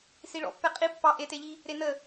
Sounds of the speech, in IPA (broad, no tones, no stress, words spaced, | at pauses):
siɭɔ̰pːɛ qʼi pːɑ ʔeteʎi | ɾenə